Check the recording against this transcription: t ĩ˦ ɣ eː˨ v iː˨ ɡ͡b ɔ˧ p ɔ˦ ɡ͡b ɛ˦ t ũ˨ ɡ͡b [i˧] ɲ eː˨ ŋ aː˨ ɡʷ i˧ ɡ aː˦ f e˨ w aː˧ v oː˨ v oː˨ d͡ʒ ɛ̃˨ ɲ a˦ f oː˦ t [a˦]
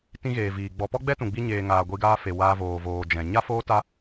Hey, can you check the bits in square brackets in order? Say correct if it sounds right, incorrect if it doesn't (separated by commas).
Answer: correct, correct